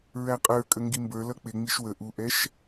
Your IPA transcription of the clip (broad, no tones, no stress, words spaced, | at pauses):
ɹæqʼə˞ kʼəŋɡimbə˞ lʌk͡pɪŋ͡miʃ wə ʔuʔɛʃ